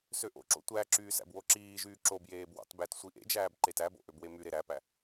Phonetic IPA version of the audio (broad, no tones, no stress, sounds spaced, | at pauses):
s ø ʔ o̰ ǁ o̰ tʷ æ ǁ yː s æ̰ b w o ǁ iː ʒ yː ǁ o b j eː b w ɑ̰ t b æ t sʷ i ʔ ḛ d͡ʒ æː b ǃ e t æ b o̰ ʔ ø b w e m y ɾ e ɾ æ p æ